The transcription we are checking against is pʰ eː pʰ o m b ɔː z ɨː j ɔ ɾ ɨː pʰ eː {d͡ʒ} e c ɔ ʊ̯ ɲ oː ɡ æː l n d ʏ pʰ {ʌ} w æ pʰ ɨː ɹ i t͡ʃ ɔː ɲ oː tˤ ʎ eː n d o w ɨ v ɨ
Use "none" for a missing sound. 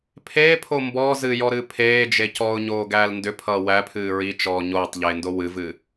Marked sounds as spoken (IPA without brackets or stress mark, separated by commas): d͡ʒ, ʌː